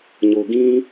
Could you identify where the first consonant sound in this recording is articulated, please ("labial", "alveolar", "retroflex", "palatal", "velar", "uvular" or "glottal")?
palatal